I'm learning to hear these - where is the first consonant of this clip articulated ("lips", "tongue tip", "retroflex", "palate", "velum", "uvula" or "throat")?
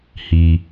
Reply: throat